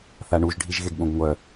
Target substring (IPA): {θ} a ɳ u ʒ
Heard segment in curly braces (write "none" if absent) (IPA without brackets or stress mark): θ